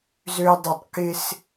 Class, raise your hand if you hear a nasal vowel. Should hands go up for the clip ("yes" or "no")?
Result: no